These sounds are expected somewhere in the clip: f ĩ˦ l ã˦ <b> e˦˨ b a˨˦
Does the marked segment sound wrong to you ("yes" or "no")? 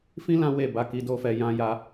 yes